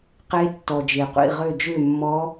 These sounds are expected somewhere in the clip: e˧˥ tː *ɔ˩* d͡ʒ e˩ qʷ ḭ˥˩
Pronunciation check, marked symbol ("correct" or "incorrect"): correct